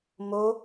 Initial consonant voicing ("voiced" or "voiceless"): voiced